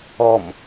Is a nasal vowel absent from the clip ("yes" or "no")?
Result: yes